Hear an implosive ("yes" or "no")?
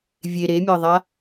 no